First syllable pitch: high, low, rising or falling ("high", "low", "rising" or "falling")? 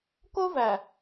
high